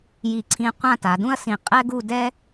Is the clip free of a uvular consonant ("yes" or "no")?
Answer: no